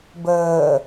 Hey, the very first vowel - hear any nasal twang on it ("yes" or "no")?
no